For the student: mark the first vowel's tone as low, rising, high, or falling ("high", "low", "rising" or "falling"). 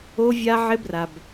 high